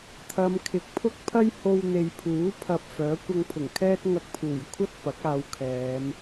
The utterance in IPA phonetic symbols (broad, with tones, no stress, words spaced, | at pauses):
t̪ʰɐ˨˧mkʰɪ˨k̚ pʰʊ˥k̚pʰɐ˥j ho˧wn̪e˨j pʰuː˨˥ pʰɐ˧p̚fœː˨˥ kʷɐ˧ŋpʰʊ˨˩ŋkʰɛː˥t̚ ŋɐ˧k̚pʰuː˨˩jkʷʰɐ˥t̚ pɐ˨˥k̚aː˨˧wkʰɛː˨˧m